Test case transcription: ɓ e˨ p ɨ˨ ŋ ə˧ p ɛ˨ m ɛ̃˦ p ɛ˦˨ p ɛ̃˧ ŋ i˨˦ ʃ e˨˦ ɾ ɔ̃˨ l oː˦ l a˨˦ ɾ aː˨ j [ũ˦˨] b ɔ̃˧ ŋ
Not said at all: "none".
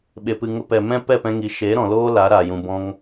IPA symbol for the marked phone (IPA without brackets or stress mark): ũ˨